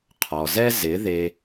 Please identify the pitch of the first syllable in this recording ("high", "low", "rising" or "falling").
low